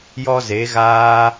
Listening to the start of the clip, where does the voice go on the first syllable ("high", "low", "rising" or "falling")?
high